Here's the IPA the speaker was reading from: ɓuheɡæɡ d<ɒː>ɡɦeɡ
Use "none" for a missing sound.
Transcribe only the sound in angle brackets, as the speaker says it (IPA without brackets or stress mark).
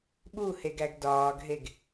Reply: ɒː